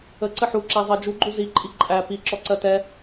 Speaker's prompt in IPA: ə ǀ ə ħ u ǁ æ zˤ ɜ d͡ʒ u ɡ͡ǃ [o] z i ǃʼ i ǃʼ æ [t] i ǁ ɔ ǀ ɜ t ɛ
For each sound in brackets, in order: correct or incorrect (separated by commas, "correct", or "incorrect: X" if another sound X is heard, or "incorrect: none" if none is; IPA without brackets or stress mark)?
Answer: incorrect: u, incorrect: p